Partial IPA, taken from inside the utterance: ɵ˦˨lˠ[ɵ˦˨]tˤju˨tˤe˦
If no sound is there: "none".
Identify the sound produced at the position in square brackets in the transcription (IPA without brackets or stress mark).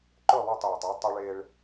ɵ˦˨